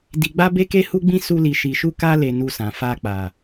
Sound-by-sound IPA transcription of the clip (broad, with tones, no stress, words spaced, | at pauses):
di˧ɡ͡ba˦be˦ke˦ hu˦ɡ͡bĩ˦ su˧li˨ ʃi˨ʃu˧ka˧le˨ nu˧sã˨fa˧k͡pa˨